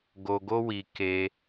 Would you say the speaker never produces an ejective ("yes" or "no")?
yes